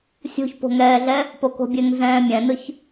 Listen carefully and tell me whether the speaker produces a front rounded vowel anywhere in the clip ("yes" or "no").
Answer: no